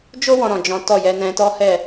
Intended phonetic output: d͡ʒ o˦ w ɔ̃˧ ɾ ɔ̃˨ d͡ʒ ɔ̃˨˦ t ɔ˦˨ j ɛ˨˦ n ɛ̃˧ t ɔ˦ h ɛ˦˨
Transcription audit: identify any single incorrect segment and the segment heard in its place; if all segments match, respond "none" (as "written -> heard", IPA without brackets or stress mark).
none